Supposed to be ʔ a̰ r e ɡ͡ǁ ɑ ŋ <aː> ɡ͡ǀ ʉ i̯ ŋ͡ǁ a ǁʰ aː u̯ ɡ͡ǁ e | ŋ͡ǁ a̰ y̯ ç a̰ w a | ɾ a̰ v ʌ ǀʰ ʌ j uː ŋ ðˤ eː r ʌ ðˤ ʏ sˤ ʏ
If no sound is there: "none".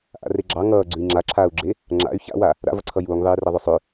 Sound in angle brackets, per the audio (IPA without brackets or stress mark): ʌː